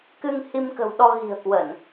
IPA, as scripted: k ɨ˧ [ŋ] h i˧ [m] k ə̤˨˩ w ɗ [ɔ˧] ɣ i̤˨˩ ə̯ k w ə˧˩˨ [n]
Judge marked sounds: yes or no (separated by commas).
yes, yes, yes, yes